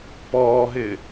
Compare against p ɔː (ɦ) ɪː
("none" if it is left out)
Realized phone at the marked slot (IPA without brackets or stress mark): ɦ